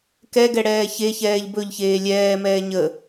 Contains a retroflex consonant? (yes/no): yes